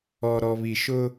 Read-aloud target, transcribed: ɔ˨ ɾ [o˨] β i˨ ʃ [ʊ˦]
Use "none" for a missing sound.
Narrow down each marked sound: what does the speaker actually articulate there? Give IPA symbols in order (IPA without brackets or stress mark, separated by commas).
ɔ˨, ʊ˦